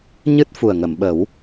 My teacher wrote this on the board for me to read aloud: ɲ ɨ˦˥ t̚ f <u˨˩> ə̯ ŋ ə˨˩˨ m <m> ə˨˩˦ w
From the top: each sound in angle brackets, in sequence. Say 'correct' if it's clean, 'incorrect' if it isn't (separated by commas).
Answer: correct, incorrect